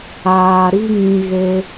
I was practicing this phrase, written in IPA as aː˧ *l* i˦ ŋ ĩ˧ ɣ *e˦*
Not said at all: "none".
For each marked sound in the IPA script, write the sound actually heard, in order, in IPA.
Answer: ɾ, e˦

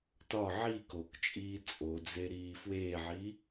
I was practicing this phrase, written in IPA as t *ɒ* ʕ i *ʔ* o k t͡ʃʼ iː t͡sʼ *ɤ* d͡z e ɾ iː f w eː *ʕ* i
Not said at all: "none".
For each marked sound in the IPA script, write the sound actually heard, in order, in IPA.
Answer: ɒ, k, o, ʕ

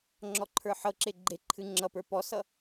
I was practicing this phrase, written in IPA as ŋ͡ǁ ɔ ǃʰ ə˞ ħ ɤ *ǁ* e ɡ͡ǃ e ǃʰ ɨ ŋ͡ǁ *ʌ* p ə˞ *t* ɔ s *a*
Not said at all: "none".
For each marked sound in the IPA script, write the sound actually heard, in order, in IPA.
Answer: ǁ, ʌ, p, ʌ

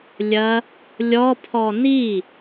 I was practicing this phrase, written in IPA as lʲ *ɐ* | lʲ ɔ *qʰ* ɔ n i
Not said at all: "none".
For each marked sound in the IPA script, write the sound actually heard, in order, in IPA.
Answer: ɐ, pʰ

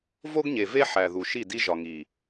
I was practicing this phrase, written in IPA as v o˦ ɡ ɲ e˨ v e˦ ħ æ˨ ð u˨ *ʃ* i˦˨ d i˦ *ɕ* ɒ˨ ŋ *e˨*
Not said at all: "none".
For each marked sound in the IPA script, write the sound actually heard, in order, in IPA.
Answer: ʃ, ʒ, i˨

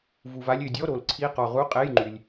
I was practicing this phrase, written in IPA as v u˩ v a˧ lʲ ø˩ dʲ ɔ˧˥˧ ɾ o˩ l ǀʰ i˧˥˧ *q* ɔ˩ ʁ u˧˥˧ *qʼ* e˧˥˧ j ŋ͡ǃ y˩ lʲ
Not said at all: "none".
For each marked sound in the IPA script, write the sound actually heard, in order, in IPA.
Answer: q, qʼ

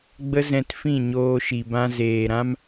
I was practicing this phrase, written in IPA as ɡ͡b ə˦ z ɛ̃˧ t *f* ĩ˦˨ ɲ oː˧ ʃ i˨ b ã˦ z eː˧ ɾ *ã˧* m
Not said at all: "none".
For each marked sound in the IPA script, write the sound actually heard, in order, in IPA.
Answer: f, ã˦

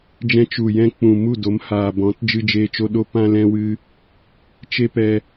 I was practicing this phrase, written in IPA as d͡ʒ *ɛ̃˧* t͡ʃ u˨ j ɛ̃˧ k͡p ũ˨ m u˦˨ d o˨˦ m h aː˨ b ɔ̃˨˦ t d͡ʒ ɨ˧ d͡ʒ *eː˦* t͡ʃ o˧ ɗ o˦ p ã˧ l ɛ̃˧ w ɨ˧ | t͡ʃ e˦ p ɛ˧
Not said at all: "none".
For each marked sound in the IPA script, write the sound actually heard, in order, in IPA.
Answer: ɛ̃˧, eː˧

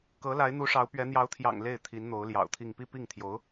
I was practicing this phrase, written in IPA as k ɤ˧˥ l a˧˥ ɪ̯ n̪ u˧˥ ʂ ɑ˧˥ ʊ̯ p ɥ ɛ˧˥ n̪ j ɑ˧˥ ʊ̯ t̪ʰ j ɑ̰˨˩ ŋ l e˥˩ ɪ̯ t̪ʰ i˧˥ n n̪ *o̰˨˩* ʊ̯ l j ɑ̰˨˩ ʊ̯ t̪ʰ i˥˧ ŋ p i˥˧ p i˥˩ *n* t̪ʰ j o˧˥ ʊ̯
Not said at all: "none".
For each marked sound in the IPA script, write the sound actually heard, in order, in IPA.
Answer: o˧˥, ŋ

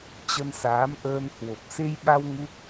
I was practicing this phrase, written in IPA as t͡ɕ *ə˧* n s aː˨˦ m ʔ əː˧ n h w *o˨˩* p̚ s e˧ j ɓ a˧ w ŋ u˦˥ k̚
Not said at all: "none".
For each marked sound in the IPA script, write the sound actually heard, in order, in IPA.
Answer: ə˧, o˨˩

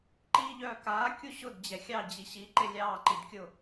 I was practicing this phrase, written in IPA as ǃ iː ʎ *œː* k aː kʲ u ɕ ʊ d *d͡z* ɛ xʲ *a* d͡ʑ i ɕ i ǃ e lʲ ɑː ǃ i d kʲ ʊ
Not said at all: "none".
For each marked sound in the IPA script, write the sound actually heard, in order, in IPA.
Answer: œː, d͡ʑ, ɑ

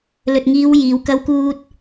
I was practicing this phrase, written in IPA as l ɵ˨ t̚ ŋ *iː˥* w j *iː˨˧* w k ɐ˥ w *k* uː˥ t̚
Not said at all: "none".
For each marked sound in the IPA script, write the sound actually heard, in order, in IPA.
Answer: iː˨˧, iː˨˧, k

